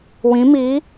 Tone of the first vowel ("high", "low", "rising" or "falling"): rising